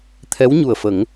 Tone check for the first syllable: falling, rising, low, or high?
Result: rising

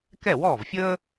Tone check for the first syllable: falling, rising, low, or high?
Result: falling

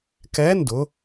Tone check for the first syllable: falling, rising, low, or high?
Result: rising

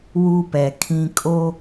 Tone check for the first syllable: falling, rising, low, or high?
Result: high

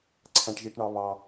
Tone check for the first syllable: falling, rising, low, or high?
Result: low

